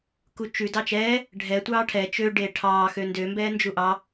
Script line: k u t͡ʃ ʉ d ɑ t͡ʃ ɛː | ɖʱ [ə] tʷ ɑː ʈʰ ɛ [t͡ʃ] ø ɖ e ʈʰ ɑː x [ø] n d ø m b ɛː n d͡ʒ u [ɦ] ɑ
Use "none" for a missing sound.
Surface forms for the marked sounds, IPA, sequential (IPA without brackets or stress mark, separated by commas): ɛ, t͡ʃ, ø, ʔ